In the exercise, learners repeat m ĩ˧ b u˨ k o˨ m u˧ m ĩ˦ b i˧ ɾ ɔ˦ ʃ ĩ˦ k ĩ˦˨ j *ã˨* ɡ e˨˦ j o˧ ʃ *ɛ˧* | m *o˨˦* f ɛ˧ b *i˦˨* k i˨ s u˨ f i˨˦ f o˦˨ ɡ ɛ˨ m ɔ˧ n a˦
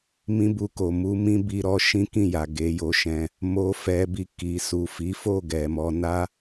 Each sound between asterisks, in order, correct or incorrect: incorrect: a˨, incorrect: ɛ̃˧, incorrect: o˧, incorrect: i˧

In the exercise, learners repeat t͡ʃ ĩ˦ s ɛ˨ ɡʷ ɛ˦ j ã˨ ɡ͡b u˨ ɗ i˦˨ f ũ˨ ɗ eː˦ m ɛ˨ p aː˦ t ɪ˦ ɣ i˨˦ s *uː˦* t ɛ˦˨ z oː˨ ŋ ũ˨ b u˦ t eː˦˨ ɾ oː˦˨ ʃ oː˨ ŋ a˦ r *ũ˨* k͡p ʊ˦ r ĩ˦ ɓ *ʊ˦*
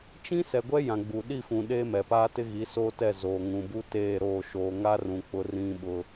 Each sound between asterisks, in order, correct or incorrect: incorrect: oː˦, correct, correct

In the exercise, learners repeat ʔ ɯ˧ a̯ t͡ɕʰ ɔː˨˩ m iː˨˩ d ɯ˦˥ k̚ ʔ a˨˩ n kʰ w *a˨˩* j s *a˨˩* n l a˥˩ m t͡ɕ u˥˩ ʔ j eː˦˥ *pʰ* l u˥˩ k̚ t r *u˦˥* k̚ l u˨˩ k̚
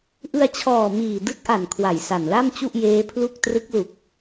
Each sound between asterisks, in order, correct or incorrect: correct, correct, correct, incorrect: ɯ˦˥

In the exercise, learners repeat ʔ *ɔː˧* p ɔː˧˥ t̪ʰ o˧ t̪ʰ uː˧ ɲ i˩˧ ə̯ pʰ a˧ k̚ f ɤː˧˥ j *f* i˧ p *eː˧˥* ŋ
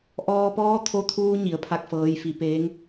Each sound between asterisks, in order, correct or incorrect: correct, correct, correct

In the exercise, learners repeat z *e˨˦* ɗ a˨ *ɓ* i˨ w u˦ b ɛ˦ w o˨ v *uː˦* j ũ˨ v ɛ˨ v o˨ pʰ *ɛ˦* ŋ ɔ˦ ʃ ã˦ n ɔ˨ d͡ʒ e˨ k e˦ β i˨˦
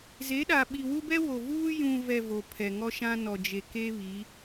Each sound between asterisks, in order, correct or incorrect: correct, correct, correct, incorrect: ɛ˨

